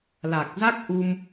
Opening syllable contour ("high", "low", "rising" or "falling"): low